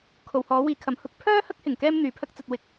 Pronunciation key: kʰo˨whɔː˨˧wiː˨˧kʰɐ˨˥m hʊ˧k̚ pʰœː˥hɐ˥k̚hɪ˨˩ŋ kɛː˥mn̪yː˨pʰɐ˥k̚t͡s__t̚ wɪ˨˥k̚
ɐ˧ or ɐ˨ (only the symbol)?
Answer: ɐ˧